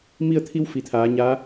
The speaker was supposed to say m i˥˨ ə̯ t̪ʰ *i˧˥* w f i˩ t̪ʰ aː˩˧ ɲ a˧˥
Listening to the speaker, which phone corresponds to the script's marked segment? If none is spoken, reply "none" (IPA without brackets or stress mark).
i˧˥